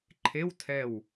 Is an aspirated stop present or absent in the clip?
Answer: present